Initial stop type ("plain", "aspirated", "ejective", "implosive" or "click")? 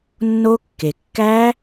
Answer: plain